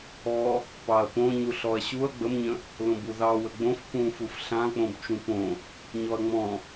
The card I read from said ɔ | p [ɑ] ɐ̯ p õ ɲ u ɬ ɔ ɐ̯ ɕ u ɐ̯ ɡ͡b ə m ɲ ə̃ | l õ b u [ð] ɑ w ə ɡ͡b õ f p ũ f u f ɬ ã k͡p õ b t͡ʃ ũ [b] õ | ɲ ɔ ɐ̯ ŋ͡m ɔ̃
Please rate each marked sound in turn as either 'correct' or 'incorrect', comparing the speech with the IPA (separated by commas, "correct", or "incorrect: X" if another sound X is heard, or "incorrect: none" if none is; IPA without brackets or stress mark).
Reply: correct, correct, incorrect: p